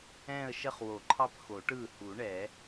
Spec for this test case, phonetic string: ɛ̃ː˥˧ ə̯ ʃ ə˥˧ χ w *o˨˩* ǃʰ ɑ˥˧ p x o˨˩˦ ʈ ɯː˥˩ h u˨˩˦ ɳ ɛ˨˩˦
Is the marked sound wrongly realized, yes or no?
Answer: yes